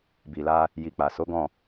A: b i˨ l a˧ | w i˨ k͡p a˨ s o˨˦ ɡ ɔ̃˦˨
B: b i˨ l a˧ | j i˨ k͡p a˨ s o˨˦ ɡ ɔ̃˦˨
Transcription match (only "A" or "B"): B